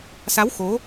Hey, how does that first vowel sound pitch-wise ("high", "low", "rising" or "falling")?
rising